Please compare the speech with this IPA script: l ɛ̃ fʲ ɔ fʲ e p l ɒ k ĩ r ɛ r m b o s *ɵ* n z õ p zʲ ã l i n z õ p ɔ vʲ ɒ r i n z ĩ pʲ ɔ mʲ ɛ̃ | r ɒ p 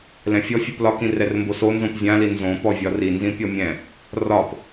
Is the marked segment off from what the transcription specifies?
yes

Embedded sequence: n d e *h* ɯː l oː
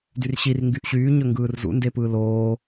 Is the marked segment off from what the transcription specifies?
yes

